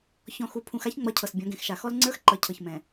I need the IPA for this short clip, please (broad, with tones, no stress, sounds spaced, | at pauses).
ç ɔ̃˨ x u˨ pʰ ũ˨ x a˦ ç ŋ͡m ʌ˨˦ cʰ ɤ˨ s bʲ ɔ̃˨˦ ɡ ɛ̃˨ x ʃ a˨ x ɔ˦ l ŋ͡ǀ ə˞˦ x ǃ ʌ˨ cʰ ɤ˨ ç m ɛ̃˨